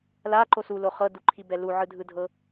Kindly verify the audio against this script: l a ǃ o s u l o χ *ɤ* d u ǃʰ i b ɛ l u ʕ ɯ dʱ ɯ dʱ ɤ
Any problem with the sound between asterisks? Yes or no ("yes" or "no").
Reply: no